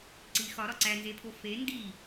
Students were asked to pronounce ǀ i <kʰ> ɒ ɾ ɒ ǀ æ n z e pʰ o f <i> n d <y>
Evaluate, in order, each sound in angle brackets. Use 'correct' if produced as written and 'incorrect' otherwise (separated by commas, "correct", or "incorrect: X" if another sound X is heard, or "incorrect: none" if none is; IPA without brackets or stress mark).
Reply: incorrect: x, incorrect: e, incorrect: i